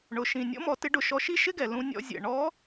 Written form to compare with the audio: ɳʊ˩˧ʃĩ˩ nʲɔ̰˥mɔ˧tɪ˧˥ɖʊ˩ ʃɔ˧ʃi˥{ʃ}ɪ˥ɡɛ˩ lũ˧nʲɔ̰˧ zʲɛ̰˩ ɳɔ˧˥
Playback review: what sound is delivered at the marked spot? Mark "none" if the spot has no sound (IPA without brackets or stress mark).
ʃ